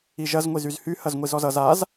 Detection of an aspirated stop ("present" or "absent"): absent